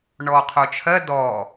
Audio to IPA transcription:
ɳɔːqʰot͡ʃʰɜ dɔː

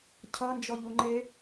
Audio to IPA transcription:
cʰʌnd͡ʒɔʎu ŋ͡ǃe

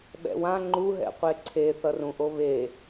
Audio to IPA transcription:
ɓɛ̰wã ŋ͡ǃu ɦɛ̰qʷeǀʰe θʌrũʔ oβe

